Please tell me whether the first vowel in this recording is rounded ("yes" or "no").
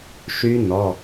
yes